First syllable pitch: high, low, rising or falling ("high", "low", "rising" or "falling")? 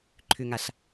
low